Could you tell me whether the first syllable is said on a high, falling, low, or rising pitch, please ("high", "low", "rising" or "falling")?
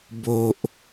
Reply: low